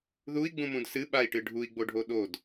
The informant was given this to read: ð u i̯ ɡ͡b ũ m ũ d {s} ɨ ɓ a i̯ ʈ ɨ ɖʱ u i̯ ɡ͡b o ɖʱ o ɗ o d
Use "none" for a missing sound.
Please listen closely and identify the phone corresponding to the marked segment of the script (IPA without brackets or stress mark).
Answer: s